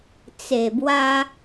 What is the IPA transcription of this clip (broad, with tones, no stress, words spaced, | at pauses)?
t͡se˨˩bwa˧